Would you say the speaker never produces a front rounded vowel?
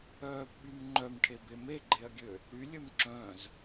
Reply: no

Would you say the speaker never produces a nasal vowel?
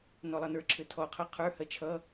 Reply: yes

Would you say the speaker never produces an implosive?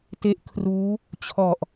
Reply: yes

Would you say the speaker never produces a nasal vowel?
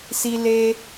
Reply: yes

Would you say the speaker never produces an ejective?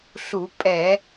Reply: no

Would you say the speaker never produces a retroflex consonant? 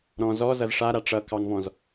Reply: no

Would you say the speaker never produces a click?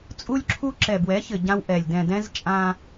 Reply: no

